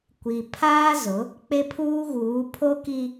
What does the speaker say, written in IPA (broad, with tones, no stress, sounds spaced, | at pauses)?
kʷ i˨ pʰ aː˦ z ʊ˨˦ | k͡p e˦ pʰ uː˦ ɣ uː˨˦ pʰ o˦ k i˦